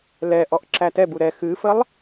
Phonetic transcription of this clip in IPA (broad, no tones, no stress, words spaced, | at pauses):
lɛʔɔʔ ǁætɛbu ɾɛ xɨfəlˠ